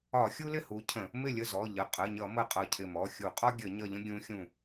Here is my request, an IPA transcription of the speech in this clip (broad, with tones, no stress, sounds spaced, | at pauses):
ɒ˧˩˧ xʲ u˦ l ɪ˥˩ h u˨˦ cʰ ə̃˧˩˧ | m ɪ˥˩ lʲ ə˥˩ z ɔ˩˧˩ ʎ ə˩˧˩ qʼ ə˩˧˩ ɲ ʌ˧˩˧ m ə˧˩ qʼ ʌ˧˩ cʰ ɪ˧˩ m ɔ˩˧˩ xʲ u˧˩˧ qʼ ɒ˦ ɡʲ ə˧˩˧ ɲ ʌ˧˩ ʎ ə̃˦ ɡʲ ũ˨˦ xʲ ũ˧˩